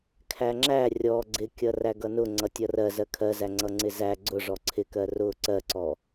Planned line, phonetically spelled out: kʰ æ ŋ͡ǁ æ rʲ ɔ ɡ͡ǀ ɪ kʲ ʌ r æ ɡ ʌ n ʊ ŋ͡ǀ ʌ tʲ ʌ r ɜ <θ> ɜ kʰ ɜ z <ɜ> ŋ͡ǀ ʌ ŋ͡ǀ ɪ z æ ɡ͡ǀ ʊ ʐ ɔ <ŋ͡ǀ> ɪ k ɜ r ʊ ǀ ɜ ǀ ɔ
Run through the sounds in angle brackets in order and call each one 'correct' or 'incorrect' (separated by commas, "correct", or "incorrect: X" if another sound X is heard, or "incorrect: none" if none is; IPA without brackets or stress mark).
incorrect: z, incorrect: æ, incorrect: ǀʰ